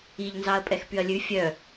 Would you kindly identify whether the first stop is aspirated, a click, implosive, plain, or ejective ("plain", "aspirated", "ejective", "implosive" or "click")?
ejective